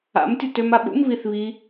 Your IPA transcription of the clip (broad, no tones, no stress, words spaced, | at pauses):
a̰m tʲotømaɓṵm βiθβi